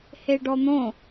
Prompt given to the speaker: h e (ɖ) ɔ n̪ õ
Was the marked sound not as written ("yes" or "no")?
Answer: no